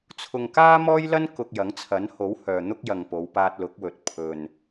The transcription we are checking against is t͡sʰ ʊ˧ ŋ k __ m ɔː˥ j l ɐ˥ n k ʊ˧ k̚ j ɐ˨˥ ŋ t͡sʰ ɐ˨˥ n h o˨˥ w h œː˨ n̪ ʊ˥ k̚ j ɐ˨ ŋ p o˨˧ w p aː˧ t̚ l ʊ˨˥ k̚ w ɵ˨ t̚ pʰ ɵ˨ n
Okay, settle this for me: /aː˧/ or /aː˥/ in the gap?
aː˥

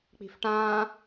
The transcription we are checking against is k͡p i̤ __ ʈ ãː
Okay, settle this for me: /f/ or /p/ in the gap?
f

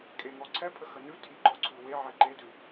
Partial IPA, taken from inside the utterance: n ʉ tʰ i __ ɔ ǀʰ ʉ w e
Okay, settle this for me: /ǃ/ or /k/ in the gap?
ǃ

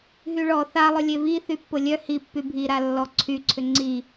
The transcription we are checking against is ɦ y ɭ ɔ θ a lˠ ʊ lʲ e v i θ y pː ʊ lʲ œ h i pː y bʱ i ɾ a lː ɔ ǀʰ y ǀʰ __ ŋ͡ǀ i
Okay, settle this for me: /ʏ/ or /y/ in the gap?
ʏ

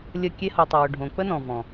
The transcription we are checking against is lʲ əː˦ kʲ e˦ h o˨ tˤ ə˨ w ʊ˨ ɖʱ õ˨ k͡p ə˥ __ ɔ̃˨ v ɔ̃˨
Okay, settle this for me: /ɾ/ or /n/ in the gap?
n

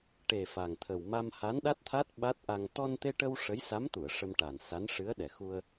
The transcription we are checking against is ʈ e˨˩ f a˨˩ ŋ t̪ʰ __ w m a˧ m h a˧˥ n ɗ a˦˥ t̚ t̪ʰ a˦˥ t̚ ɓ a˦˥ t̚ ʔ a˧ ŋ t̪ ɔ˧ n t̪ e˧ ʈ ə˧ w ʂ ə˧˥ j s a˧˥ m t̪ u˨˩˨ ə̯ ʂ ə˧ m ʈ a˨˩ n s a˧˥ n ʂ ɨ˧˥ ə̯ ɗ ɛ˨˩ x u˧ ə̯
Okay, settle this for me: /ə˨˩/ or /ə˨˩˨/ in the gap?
ə˨˩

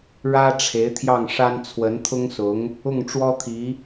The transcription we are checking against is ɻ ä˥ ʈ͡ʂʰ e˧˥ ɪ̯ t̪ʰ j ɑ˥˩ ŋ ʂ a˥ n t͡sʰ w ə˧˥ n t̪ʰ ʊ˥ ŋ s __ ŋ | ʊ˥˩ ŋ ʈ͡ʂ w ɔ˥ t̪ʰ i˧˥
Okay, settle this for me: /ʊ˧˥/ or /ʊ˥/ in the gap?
ʊ˧˥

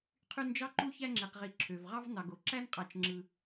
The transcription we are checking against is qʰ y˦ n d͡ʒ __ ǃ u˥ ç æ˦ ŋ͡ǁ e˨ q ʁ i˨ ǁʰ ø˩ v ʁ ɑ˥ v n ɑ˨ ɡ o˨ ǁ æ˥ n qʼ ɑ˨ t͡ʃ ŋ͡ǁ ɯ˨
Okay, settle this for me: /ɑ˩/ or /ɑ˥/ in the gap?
ɑ˥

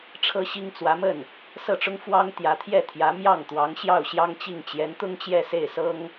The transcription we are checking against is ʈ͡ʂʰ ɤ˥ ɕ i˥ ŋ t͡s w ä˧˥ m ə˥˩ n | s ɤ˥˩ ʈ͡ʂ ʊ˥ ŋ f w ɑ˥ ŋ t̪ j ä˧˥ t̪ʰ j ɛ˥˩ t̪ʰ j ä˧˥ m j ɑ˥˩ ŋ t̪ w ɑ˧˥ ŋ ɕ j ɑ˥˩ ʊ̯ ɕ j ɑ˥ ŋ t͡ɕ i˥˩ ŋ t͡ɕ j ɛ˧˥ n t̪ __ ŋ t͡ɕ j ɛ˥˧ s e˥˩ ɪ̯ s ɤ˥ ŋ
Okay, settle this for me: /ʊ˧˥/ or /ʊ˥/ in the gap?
ʊ˥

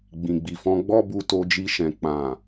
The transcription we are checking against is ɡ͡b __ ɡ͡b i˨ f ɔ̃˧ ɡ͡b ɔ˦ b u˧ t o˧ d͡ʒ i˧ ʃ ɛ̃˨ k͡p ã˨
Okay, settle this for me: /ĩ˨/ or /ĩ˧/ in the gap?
ĩ˨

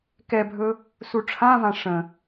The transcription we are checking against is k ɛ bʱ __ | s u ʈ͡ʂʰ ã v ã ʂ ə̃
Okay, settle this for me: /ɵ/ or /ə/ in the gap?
ɵ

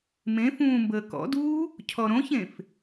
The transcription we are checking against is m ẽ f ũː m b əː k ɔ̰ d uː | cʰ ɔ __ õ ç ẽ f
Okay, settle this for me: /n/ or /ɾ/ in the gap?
ɾ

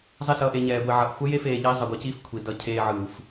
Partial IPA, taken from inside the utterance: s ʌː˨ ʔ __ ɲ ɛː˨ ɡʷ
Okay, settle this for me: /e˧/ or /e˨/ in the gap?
e˨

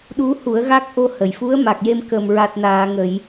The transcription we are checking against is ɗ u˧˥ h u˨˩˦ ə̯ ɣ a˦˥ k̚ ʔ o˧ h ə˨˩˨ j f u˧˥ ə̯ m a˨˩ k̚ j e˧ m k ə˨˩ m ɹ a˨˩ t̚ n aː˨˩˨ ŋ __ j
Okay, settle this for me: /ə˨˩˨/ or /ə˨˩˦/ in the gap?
ə˨˩˨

